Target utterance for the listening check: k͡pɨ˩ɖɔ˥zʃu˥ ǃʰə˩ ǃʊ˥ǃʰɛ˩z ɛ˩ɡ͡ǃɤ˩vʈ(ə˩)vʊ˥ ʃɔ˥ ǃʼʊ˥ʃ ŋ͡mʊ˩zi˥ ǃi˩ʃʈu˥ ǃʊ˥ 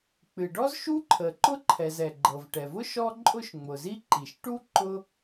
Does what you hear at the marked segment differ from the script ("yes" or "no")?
yes